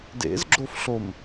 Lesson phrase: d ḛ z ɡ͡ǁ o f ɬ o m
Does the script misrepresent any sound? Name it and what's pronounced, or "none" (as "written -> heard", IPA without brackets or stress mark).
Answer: none